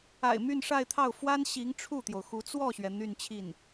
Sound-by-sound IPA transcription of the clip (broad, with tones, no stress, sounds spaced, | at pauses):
a̰˨˩ ɪ̯ m y˥˧ n ʂ a˥˧ ɪ̯ t̪ʰ ɑ˥˩ ʊ̯ f w a˥ n ɕ i˧˥ ŋ ʈ͡ʂʰ u˥˩ t̪ j o˩ ʊ̯ x u˧˥ t͡s w ɔ˥˩ ɕ ɥ ɛ˩ n̪ y˥˧ n t͡ɕʰ i˥˩ n